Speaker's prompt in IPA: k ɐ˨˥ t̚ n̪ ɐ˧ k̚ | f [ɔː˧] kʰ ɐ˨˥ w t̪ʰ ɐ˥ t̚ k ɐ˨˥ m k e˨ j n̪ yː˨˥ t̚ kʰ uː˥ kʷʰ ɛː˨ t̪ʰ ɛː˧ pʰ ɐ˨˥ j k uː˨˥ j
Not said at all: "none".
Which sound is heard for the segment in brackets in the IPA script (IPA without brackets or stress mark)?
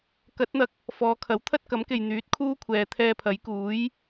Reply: ɔː˨˧